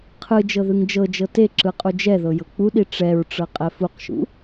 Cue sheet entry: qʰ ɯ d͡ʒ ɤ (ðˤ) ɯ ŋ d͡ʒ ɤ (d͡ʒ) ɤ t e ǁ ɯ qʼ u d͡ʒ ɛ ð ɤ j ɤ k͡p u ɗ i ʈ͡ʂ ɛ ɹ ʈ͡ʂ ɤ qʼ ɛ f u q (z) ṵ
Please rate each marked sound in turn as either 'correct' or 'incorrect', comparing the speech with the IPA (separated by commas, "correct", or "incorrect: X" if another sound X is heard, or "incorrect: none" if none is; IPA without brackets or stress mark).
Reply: incorrect: ð, correct, incorrect: ʃ